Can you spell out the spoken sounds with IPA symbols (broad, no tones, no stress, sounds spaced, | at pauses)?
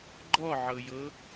ɡ͡ǃ ɔ ʕ ɤ j ɤ